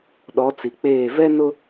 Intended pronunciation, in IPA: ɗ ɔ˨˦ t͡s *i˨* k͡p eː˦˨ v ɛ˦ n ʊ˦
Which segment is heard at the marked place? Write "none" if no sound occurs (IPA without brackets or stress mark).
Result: i˨